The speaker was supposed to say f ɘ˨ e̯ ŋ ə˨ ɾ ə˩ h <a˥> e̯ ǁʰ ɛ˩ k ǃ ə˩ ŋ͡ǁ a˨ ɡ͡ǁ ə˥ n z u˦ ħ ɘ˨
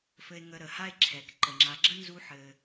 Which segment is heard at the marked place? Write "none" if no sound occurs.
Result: a˥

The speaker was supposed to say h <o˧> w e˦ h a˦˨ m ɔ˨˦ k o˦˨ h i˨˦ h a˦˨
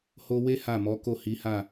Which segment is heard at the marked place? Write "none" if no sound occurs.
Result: o˧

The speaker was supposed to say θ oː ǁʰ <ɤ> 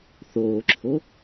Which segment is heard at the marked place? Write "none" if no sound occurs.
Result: o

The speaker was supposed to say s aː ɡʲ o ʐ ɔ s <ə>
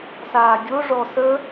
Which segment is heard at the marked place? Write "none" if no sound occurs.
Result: ə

